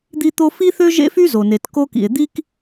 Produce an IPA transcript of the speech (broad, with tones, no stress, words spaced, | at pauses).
d̪i˥t̪o˥ fi˥θø˥ ʒḛ˥fy˥zo˩ne˩t ko˥kḭ˩e̯ d̪i˥k